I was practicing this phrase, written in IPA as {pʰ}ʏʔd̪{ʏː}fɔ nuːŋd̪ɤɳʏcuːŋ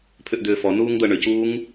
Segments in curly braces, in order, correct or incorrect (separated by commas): correct, correct